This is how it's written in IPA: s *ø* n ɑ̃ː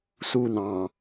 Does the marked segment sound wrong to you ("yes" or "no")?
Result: yes